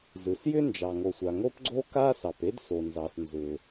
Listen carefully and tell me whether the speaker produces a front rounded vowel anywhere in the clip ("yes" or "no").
yes